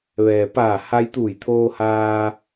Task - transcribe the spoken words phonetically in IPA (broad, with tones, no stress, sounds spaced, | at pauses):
ʋ ɛː˩ p aː˧˩ h a˧ j t̪ uː˧˩ j t̪ʰ oː˧ h aː˧